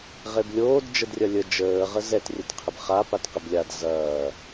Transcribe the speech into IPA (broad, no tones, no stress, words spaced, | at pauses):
ʁeblʲoːd d͡ʒədrʲɐlʲə d͡ʒəː ʁəzɛt rʲɛtqʰɪbχa patqɪblʲad zɐː